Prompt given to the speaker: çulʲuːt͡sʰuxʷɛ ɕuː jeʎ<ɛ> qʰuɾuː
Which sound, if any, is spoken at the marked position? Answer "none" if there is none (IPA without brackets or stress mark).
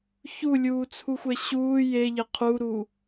ɪ